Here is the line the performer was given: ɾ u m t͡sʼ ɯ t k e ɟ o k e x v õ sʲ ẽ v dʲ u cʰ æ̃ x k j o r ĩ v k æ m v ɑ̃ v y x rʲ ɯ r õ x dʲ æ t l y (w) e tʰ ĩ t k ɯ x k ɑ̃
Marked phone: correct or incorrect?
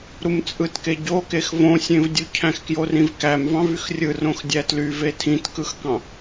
incorrect